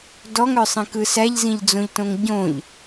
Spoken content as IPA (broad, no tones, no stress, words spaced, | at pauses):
dɔŋœsˤĩkɯ sæʎzĩʎd͡zõʎtõŋ ɟõʎ